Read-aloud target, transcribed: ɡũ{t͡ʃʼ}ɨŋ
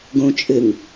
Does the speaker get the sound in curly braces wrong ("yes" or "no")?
no